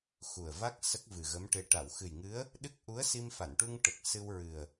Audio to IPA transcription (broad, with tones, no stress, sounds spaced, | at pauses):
x u˨˩ ə̯ v a˦˥ k̚ s ə˦˥ k̚ v ɨ˨˩ ɣ ə˧˥ m ʈ e˧ ʈ a˨˩˨ w x ɨ˨˩ j ŋ ɨ˧˥ ə̯ | ɗ ɨ˦˥ k̚ ʔ u˧˥ ə̯ s i˧ m f a˨˩˨ n ʈ u˧ ŋ ʈ ə˨˩ k̚ s ɨ˧ w ɹ ɨ˨˩ ə̯